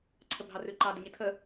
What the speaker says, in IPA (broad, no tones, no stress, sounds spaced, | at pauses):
ǀʰ ə bʱ ɑ r ʉ ǃ ɑ d ɘ ɲ ɪ tʰ ə